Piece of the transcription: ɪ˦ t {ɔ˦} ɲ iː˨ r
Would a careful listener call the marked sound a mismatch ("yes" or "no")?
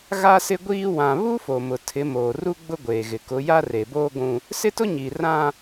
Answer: yes